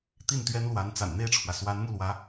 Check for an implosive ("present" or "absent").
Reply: absent